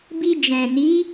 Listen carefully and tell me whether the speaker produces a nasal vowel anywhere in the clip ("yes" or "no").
yes